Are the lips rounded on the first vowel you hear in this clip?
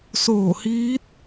yes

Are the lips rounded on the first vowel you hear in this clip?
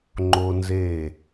yes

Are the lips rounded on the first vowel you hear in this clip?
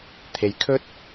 no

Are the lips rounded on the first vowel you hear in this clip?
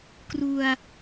yes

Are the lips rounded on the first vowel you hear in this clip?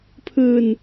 no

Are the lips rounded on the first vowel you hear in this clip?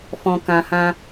yes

